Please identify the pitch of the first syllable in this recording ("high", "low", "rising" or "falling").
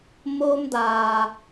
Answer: high